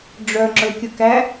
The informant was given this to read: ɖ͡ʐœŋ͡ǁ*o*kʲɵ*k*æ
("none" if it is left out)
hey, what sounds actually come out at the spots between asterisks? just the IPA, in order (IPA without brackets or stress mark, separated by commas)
ɵ, k